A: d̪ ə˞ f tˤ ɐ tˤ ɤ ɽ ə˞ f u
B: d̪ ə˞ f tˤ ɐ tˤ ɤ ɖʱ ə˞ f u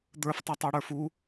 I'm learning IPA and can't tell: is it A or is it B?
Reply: A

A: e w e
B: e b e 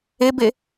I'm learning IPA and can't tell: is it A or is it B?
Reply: B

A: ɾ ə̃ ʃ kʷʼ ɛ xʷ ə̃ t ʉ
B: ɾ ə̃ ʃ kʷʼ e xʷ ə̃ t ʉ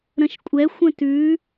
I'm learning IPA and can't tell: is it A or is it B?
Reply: A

